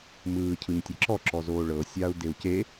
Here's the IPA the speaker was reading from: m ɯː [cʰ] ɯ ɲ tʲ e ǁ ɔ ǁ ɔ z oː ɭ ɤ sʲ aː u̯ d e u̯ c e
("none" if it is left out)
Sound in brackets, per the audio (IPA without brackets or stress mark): cʰ